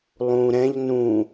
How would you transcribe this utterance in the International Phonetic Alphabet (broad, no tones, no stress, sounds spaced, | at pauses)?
lˠ ũ ɾ ɛ̃ ʎ n ũ